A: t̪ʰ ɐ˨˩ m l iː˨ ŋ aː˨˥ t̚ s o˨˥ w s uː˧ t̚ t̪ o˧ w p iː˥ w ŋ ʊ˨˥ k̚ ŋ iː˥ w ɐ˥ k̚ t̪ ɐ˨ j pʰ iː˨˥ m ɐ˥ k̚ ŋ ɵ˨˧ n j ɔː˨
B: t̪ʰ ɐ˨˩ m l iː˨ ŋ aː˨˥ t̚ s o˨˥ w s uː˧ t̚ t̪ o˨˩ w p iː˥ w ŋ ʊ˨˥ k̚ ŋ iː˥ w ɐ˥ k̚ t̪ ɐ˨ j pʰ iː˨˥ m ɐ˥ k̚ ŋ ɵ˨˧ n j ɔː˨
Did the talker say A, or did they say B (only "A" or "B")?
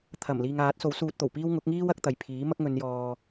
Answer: B